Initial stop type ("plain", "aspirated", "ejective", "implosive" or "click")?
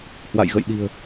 implosive